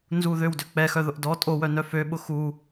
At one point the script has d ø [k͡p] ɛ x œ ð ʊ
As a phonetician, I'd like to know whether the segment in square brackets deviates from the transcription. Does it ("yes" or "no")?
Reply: no